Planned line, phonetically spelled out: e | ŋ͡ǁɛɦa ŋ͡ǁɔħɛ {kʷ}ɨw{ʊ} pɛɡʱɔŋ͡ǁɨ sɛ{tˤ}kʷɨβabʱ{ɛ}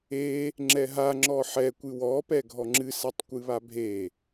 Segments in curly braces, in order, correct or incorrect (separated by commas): correct, incorrect, correct, incorrect